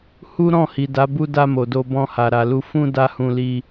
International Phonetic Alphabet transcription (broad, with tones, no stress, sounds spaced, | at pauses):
h u˦ ɾ ɔ̃˦˨ h i˨ d a˨˦ b u˧ d a˧ m o˨ d o˧ b ɔ̃˧ h a˨ ɾ a˨ l u˧ f ũ˧ d a˦ h ũ˧ l i˧